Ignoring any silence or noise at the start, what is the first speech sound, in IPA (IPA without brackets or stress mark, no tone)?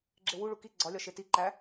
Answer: ɡ͡ǁ